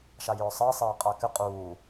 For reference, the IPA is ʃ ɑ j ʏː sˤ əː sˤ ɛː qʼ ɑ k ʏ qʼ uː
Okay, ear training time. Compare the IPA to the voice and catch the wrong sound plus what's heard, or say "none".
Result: none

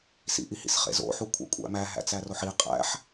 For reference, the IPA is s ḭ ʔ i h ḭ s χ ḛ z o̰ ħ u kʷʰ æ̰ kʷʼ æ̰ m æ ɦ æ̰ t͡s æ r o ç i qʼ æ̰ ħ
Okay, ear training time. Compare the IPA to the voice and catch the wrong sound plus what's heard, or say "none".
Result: ç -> ħ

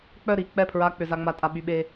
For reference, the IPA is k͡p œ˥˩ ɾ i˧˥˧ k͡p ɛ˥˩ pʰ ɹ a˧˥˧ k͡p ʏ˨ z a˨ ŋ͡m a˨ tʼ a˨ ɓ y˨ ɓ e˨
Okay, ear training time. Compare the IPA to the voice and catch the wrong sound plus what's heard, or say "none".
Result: none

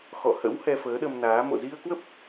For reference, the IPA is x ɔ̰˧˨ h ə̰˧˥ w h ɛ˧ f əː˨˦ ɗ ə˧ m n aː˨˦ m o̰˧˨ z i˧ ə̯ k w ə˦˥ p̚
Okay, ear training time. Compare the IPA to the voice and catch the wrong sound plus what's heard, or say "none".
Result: none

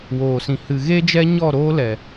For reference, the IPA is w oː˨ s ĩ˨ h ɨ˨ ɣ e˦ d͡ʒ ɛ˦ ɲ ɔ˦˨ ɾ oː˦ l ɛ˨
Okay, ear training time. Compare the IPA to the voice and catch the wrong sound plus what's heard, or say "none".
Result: none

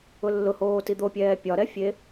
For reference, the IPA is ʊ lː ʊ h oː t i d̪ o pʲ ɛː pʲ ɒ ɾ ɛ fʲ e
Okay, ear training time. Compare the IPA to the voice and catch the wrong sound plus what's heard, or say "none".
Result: none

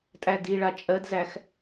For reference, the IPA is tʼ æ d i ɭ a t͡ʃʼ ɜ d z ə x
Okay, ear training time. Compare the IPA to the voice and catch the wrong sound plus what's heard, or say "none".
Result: ə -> æ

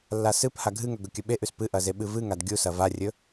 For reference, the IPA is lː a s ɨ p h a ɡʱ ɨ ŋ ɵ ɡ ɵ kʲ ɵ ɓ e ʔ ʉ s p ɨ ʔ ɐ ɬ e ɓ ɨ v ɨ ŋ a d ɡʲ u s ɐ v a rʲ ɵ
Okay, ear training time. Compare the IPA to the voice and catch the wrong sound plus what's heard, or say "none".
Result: ɬ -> z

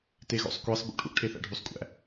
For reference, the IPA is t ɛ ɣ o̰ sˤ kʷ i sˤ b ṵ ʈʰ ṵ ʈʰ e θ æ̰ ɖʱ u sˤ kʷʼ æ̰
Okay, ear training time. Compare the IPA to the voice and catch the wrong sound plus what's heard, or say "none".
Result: ɛ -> e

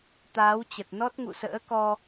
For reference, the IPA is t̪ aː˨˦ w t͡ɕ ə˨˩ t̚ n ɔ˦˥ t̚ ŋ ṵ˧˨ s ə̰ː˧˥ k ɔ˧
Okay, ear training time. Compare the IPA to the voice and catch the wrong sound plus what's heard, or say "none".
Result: none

